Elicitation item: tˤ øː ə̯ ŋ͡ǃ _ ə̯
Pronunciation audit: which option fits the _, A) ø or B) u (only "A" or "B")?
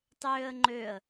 A